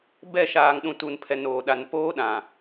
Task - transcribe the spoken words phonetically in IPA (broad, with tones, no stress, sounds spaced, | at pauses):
b ɛ˦˨ ʃ aː˨ ŋ ɗ ũ˨ t u˨ n pʰ ɛ˨ n oː˨ ɗ a˨ n p oː˦ ɗ ã˨